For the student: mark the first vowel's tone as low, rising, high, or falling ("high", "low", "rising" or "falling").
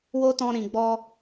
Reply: high